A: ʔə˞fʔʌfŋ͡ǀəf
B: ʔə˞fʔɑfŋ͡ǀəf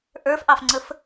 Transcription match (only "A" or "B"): B